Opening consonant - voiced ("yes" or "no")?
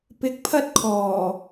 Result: no